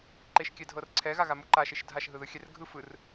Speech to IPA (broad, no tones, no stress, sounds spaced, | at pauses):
ǃ e ʃ kʲ ɛ dʱ ɤ r ǀʰ ɛ ɣ a ɣ a m u ǃ a ʃ e ʃ dʱ a ʃ ɦ ɯ ð ɯ xʲ ɛ r ɡʱ ɯ f ɯ r